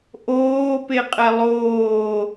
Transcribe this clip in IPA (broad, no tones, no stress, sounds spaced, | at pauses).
ʔ oː p e qʼ ɛ lˠ oː